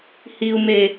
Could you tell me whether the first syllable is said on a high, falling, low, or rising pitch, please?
low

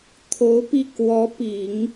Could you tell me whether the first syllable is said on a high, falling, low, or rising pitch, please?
rising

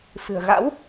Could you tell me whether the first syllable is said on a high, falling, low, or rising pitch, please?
low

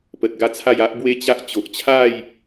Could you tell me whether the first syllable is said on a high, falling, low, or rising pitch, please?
low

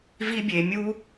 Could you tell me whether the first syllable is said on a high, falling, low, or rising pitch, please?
high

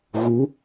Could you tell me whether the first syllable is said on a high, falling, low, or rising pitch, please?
rising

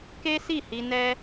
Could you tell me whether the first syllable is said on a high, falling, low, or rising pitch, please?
high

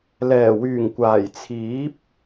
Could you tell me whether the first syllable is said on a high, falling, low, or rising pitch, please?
low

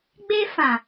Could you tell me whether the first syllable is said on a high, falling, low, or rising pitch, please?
high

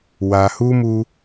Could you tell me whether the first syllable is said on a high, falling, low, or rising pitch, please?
low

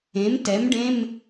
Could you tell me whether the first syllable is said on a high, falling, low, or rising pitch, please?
rising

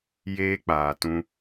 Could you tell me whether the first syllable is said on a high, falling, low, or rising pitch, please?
high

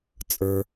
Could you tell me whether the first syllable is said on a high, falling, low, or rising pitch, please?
low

